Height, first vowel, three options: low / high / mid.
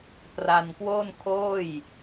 low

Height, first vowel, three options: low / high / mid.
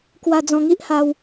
low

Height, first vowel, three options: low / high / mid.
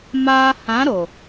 low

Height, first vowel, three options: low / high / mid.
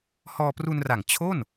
mid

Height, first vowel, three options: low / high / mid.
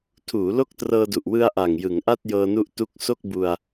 high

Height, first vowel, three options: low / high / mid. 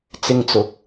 high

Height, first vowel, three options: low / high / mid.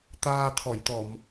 low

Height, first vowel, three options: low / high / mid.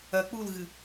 low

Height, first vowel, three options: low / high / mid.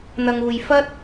low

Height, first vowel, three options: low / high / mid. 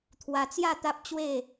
low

